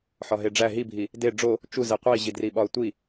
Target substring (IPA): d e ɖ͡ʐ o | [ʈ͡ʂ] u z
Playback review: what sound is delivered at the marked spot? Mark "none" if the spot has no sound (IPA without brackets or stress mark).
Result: t͡ʃ